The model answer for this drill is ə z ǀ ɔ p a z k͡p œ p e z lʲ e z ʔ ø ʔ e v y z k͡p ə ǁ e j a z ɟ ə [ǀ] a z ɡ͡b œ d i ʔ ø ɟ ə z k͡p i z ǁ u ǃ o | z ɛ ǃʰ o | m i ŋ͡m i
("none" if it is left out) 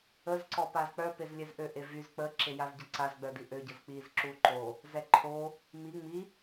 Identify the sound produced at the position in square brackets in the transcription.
ǀ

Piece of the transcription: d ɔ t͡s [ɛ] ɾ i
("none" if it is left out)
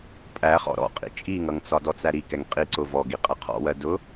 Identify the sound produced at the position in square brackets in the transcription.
æ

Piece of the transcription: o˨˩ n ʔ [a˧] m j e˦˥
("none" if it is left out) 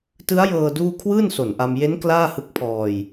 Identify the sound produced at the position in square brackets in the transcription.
a˧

